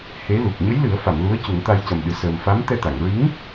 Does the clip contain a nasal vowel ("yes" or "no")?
no